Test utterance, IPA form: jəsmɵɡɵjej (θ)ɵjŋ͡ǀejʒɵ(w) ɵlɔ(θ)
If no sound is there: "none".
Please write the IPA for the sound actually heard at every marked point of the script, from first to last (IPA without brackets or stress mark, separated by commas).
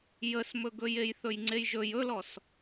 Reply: θ, j, s